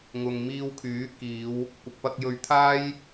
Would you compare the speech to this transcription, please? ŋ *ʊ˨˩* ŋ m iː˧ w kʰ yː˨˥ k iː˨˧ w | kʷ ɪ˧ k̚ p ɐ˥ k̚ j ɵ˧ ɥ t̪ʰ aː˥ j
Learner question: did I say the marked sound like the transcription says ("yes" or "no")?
no